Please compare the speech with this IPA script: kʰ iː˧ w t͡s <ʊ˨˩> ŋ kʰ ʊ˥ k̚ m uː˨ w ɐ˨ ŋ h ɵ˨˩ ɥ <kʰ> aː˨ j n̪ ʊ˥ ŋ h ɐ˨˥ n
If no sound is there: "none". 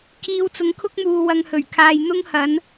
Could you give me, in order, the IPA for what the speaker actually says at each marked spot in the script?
ʊ˨˧, kʰ

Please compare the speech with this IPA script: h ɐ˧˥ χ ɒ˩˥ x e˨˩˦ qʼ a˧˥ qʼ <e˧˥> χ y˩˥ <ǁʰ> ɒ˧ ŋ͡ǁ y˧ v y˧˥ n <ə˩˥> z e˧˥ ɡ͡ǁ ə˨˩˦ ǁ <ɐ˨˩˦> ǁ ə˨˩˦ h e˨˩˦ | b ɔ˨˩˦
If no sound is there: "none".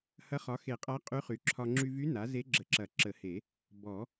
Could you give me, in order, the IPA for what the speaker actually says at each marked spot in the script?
y˧˥, ǁʰ, a˩˥, ɐ˨˩˦

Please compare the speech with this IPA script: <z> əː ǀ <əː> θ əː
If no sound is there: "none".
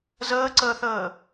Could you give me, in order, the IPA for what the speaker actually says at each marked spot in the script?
z, əː

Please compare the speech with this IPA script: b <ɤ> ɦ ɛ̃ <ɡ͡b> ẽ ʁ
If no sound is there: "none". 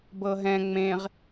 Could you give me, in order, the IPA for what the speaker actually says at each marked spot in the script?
ɤ, ŋ͡m

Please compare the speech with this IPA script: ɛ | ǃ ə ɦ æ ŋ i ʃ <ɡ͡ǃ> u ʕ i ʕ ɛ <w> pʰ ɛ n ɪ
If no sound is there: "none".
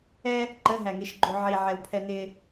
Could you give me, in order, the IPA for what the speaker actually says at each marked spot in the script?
ɡ͡ǃ, w

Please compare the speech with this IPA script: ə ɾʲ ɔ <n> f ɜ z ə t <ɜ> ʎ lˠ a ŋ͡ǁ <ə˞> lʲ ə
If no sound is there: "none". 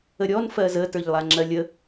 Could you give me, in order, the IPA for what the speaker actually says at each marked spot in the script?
n, ə˞, ɜ

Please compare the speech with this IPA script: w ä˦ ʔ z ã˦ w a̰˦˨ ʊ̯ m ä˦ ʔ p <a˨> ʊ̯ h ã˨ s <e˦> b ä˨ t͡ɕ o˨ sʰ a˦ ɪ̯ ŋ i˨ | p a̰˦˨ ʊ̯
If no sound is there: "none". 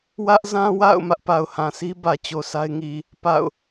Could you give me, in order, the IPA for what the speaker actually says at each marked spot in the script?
a˨, i˦

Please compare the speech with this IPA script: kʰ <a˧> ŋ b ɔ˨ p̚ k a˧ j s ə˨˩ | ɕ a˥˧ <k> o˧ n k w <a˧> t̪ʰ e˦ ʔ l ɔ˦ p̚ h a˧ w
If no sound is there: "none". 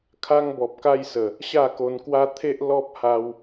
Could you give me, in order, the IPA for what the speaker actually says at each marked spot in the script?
a˧, k, a˦

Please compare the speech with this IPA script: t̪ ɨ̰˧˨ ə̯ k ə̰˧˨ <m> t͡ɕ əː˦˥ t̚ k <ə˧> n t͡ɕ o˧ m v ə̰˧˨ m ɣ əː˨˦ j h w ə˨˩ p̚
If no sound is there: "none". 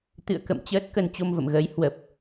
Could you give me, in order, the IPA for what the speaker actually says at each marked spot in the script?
m, ə˧

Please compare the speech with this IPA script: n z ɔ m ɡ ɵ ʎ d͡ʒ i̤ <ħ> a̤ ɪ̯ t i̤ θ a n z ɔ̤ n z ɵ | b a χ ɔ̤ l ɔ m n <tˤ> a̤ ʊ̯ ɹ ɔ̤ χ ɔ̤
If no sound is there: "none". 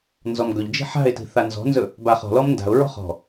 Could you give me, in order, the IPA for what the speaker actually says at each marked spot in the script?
ħ, d

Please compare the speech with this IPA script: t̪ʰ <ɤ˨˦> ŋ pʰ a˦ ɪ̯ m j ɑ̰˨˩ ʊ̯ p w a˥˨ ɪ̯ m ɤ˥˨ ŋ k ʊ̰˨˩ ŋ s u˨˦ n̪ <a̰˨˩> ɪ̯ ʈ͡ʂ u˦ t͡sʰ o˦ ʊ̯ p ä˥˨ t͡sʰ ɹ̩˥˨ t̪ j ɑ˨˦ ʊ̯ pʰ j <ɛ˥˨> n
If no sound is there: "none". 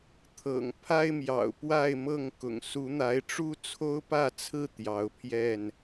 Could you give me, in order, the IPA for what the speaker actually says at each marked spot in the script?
ɤ̰˨˩, a˨˦, ɛ˥˨

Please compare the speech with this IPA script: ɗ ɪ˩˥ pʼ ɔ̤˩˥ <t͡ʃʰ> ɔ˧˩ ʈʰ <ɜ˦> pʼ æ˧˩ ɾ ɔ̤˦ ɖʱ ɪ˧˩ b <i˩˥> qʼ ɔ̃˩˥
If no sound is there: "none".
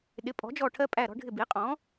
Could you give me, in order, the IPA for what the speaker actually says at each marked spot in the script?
d͡ʒ, ɜ˦, i˩˥

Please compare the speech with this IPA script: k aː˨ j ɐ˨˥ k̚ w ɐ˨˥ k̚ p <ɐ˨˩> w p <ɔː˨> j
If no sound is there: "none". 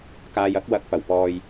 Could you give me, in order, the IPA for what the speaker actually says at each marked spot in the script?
ɐ˨˩, ɔː˨

